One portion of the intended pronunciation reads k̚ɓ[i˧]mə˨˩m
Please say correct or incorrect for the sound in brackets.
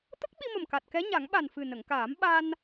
correct